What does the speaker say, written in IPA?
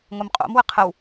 ŋ o m qʼ o̰ m w ə qʰ ə w

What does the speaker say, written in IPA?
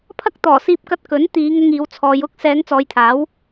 pʰ ɐ˥ k̚ t̪ ɔː˨˩ s iː˧ p̚ k ɐ˧ t̚ k ɵ˨˥ n t̪ iː˨˧ ŋ ʊ˧ ŋ iː˨˧ w t͡sʰ ɔː˨˧ j ʊ˥ k̚ s ɛː˨˧ ŋ t͡s ɔː˨˧ j t̪ʰ aː˨˥ w

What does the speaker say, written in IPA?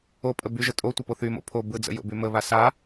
o pʼ ə b y ʒ ə tʼ o tʷ ə p o θ y m o̰ pʰ o b ɯ d͡z ə̰ j o̰ b y m ə β a s a

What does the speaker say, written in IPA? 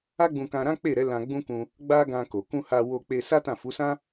a˦ ɡ͡b ũ˧ k ã˧ ɾ ã˦ k͡p e˦˨ ɾ ɛ˨˦ l ã˧ ɡ͡b ũ˦ k ũ˧ | ɡ͡b a˦ ɡ ã˧ k o˨ k ũ˧ h a˧ w o˧ k͡p e˧ s a˦ t ã˦˨ f u˨˦ s ã˦

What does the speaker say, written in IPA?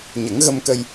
ɲ ə˨˩˦ ŋ ɣ ə˧ m k ə˧ j

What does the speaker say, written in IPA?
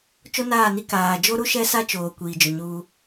t͡ʃ o˦ n aː˦˨ n i˦ k aː˨ d͡ʒ o˦ ɾ u˦ ʃ ɛ˦ s a˦ t͡ʃ oː˨ kʷ iː˨ d͡ʒ ʊ˨ ɲ uː˦

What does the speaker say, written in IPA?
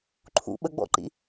ǃʰ ṵ ɓ ə ɡ͡b ɔ̰ ǃ ḭ

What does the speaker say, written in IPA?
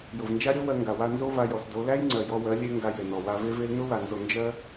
j ʊ˨ v n d͡ʒ a˦ ɾʲ o˦ w ɜ˧ ŋ ɡ a˨ w a˧ n z o˦ v a˧ j ɔ˨ s d o˨˦ l æ˦ j ŋ͡ǀ ɜ˨ j ɔ˧ w ɜ˨˦ lʲ e˦ ŋ ɡ a˧ j e˨ n ɔ˨ w a˧ v e˦ v e˦ l n ʊ˦ w a˨ n z o˨ n d͡ʒ ɜ˦

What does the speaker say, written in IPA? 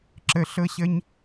ǁ ə˥ ɬ ɤ˥ ɕ ə˥ ɲ

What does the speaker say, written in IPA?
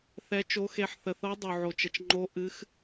θ ɛ˦˥ t͡ʃ o˦˥ x e˦˥ ħ θ ə˧ θ ɤ˦˥ dˤ u˧ ʕ o˧ t͡ʃ ə˧ t͡ʃ ŋ͡ǃ o˦˥ ʔ ɨ˦˥ x

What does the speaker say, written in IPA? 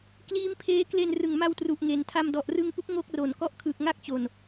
k l iː˦˥ m pʰ eː˦˥ k l e˧ n r ɯ˨˩ ŋ m a˧ w t r u˨˩ ʔ ŋ e˩˦ n tʰ a˧ m d ɔ˨˩ ʔ r ɯ˧ ŋ p u˦˥ k̚ ŋ o˥˩ k̚ r o˨˩ n k ɔ˥˩ ʔ kʰ ɯ˨˩ k̚ ŋ a˥˩ k̚ t͡ɕ o˨˩ n

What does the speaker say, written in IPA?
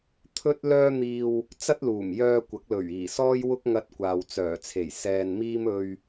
t̪ʰ ɵ˥ t̚ l œː˥ n̪ iː˧ w | t͡s ɐ˥ t̚ l uː˨˩ m j œː˧ kʷ ɐ˨˥ k̚ l ɵ˨˩ ɥ iː˨˩ s ɔː˥ j w ʊ˥ k̚ ŋ ɐ˧ t̚ kʷ aː˨ w t͡s œː˨˩ t͡sʰ e˨˩ j s ɛː˧ n m iː˥ m ɵ˧ ɥ

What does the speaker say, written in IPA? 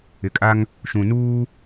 ɪ˨ kʼ a˦ ŋ | ʃ ũ˨ n uː˦

